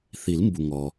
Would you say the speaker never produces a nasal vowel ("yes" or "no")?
yes